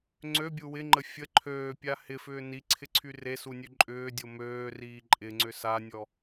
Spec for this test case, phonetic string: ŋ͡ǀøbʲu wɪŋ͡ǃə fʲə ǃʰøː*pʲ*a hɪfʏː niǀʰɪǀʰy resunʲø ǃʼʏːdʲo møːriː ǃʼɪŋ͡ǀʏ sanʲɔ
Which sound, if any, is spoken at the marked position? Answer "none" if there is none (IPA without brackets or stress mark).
pʲ